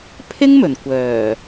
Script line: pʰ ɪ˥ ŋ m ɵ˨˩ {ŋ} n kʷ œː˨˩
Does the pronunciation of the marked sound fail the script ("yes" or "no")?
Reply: yes